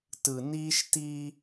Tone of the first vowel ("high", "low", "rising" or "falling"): low